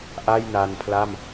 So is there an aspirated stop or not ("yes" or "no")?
yes